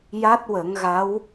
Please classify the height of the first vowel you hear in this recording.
low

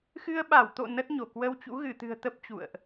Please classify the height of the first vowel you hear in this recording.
high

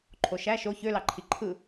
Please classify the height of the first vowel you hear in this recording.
mid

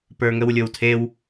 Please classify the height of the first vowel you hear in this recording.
mid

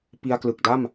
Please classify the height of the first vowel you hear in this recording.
high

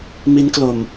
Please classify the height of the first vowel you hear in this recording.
high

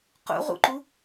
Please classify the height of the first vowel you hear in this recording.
high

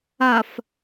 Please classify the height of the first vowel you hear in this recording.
low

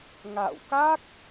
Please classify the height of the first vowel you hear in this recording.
low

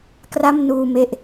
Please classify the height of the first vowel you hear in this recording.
low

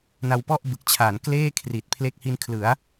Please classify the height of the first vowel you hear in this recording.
low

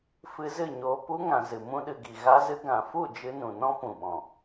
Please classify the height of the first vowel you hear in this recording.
high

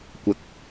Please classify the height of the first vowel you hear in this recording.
low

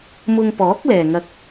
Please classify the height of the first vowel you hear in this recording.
high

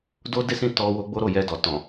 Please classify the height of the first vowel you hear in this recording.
mid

